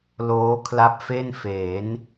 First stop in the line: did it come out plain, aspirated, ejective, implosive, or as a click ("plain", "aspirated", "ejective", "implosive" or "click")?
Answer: aspirated